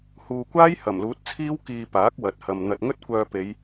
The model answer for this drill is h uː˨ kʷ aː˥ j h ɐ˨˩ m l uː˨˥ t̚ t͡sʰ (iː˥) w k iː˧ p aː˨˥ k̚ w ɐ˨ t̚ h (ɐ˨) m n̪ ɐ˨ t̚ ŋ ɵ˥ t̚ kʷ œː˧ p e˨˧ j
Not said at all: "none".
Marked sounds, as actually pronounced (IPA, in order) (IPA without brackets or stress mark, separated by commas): iː˥, ɐ˨